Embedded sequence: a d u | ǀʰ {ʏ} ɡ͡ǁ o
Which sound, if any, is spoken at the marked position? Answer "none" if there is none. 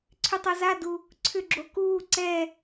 ʏ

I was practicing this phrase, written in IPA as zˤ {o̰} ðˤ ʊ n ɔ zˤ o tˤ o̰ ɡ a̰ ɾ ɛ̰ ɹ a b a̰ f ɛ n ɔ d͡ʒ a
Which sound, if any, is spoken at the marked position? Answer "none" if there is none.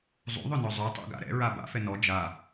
ṵ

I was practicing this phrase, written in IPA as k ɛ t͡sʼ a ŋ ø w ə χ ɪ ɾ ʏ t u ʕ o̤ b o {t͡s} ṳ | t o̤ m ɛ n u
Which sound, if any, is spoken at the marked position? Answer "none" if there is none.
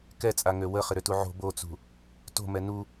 t͡s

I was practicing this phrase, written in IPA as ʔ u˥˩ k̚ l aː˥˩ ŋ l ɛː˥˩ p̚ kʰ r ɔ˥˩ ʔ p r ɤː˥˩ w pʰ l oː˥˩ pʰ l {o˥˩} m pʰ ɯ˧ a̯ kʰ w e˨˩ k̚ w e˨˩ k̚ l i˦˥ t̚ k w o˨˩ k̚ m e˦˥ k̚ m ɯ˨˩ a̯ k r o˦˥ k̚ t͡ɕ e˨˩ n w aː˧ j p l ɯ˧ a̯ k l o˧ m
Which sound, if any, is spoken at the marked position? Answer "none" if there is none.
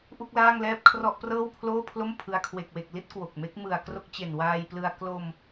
o˥˩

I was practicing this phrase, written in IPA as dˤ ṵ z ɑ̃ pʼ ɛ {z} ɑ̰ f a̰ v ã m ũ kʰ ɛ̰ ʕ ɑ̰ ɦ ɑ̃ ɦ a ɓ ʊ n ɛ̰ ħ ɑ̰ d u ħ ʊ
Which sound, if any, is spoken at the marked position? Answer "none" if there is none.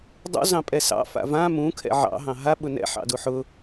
s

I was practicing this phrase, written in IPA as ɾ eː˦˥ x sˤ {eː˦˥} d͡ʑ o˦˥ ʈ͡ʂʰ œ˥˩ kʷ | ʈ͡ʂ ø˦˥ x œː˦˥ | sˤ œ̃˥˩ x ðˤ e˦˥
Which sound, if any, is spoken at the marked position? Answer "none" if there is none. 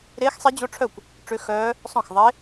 e˦˥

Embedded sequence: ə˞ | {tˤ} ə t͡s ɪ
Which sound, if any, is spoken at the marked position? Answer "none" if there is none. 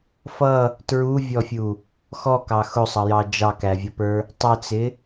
tˤ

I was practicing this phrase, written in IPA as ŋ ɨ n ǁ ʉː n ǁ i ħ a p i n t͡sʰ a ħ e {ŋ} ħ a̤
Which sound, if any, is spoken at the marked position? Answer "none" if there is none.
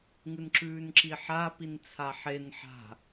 n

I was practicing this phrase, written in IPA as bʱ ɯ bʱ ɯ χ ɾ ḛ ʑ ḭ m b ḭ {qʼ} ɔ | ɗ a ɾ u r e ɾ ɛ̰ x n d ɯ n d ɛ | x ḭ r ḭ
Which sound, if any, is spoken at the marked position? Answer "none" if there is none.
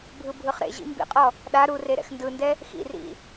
qʼ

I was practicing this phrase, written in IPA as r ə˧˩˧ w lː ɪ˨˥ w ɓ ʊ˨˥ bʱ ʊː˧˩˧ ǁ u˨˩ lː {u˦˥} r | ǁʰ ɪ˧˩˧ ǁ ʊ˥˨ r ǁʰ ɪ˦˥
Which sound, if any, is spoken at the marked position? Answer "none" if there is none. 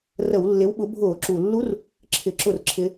u˦˥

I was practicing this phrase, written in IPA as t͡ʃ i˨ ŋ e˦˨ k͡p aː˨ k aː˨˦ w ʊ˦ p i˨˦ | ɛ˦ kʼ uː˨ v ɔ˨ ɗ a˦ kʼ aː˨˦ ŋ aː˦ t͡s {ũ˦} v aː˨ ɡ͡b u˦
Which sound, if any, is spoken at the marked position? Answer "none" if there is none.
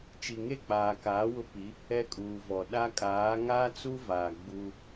u˦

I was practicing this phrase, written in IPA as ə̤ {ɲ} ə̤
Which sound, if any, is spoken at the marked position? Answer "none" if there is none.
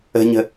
ɲ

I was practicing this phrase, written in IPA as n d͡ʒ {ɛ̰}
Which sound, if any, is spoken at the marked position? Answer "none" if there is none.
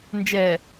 ɛ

